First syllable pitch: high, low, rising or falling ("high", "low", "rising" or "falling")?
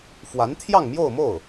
rising